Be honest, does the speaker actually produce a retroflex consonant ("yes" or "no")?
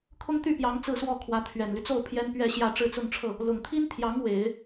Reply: yes